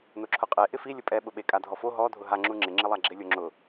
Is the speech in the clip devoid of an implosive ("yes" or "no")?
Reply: no